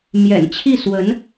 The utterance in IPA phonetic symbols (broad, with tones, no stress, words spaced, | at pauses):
mjɛ̰˨˩nt͡ɕʰi˥˩ swə˧˥n